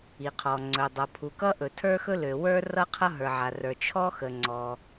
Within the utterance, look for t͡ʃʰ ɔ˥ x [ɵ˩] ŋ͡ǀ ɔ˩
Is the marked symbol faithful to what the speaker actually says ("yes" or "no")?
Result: no